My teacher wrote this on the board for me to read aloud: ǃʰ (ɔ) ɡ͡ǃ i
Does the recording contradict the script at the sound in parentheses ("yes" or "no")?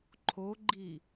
yes